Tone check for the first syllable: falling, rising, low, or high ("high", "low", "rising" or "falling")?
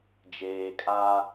low